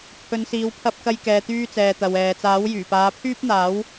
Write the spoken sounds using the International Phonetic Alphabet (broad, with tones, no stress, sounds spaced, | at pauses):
pʰ ɵ˨˧ n s iː˨˧ w pʰ ɐ˥ p̚ k ɐ˥ j k ɛː˧ t̪ yː˥ t͡s ɛː˨ t̪ ɐ˨ w ɛː˨ t͡s aː˨˥ w j yː˨˩ p aː˨˧ pʰ yː˥ p̚ n̪ aː˨˥ w